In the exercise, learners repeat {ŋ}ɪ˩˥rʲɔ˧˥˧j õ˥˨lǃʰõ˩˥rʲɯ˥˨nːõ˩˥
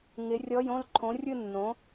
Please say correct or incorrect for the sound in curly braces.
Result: correct